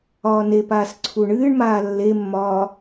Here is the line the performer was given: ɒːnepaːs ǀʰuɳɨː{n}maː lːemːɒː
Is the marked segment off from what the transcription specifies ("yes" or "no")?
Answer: yes